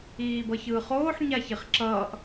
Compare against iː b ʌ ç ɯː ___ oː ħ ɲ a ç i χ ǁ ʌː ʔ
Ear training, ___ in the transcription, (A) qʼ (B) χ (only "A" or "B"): B